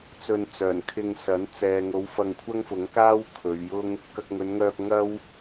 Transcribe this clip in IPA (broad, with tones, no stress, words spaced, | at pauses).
t͡sɵ˧n t͡sœː˨˩nkʰɪ˧ŋsɐ˨˥n t͡sɛː˨ŋo˨˥w fɐ˧ŋkʷʰɐ˥ŋfʊ˨˥ŋkaː˥w kʰɵ˨˧ɥjʊ˥ŋ | kɐ˧k̚ŋɵ˨˧nŋœː˧p̚ ŋɐ˥w